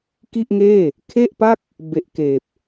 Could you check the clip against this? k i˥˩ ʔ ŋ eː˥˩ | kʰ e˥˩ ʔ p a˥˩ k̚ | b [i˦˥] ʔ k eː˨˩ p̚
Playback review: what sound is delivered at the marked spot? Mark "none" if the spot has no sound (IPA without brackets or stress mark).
e˦˥